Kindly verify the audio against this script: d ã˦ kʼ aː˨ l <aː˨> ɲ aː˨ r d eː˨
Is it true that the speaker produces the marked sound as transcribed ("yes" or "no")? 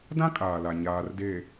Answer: no